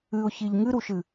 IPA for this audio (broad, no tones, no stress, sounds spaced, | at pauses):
ɨ ʊ̯ ç i ʎ ŋ ɨ ɾ u ʃ ɨ